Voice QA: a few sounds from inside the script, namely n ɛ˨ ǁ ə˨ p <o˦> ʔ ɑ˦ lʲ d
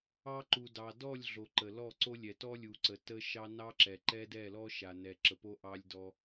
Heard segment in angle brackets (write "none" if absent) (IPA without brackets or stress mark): o˦